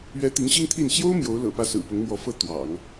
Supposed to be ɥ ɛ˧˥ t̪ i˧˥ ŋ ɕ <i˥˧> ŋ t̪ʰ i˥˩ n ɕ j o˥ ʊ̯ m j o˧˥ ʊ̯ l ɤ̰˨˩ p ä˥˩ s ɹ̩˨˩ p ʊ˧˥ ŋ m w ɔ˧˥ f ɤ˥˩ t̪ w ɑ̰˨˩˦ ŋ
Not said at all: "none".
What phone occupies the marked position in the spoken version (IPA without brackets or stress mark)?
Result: i˥